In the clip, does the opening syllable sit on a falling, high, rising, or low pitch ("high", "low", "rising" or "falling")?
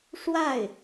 falling